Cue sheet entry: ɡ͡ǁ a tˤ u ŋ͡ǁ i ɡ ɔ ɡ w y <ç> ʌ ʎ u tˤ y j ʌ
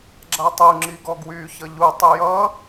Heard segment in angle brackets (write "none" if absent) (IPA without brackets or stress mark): ç